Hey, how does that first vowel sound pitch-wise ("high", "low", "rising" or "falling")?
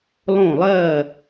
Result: falling